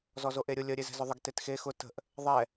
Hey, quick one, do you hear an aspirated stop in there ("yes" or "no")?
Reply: no